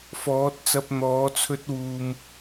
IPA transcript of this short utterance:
fɔː˨˥t̚t͡sɐ˧p̚ n̪ɔː˨˥t͡sʰɵ˥t̚wuː˧m

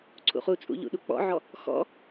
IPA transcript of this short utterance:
ǀʰṵχut͡sʼṵ ʎṵɗuk͡pɔ̰ʕɔ | xɔ̰

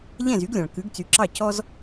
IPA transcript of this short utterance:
ʎɛ̃˥˩zy˩˥ɡlʲɑ̃˩ɭ kʉ˩˥ɡt͡sy˩˥ǁɑ˥˩ cɔ˥z

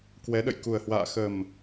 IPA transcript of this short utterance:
kwɛ˨˦ɗə̰˧˨jku˨˩ə̯hwa̰ː˧˨ xə˨˩m

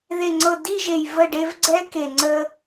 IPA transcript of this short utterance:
ðe˨ŋ͡ǀɤ˨ di˦˨ʒe˨j və˦˨ɖe˦vɡ͡ǀɛ˦ ke˨ŋ͡ǀə˦

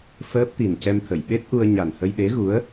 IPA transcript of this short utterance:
fəː˦˥p̚t̪i˨˩ncɛ˧mt̪ʰə˨˩˨j ɓe˦˥t̚ʔu˧ə̯ ɲa˨˩nhə˧j ɗe˧˥ɣu˧˥ə̯

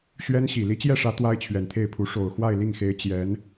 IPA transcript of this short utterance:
ɕɥɛ˥nɕi˨˩ li˧˥t͡ɕjɛ˥˩ʂä˧˥ t̪wa˥ɪ̯t͡ɕʰɥɛ˨˩nt̪ʰe˥˩ɪ̯pʰu˧˥ ʂo˨˩ʊ̯xwa˥˧ɪ̯li˥˩ŋxe˧˥ɪ̯ t͡ɕjɛ˧˥n

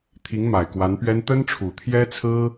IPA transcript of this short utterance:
t̪ʰi˧˥ŋma˨˩ɪ̯kwa˧˥npɥɛ˥n t̪ə˥nʈ͡ʂʰu˨˩t̪ʰjɛ˥t͡sʰɹ̩˥

